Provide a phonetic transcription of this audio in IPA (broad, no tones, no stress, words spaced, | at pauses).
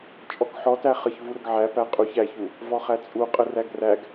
t͡ʃʼɔkħɔtæ χəçvu ɾəɡʕæ pæqʼuç æçu | vɔχæt͡sʼu qʼəræɡræɡ